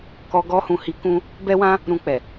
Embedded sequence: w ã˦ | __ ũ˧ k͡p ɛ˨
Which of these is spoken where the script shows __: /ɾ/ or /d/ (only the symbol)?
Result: ɾ